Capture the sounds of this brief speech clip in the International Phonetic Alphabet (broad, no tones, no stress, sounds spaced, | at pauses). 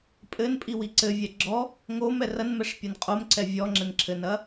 pʼ ɘ n pʼ i w i ǀ ɘ vʲ ɛ ɡ͡ǁ ɔ | ŋ o m ɛ r ɐ n m ɛ ʂ pʲ ɐ n qʼ o m ǀ ɛ vʲ ɔ ŋ͡ǁ ɘ n ǁʰ ɘ n ɐ